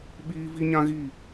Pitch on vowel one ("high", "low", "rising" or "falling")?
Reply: high